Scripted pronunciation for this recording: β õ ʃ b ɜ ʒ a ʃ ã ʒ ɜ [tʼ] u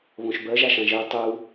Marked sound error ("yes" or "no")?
yes